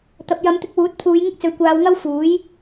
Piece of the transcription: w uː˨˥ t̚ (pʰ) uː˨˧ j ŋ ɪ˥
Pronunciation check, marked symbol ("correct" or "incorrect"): correct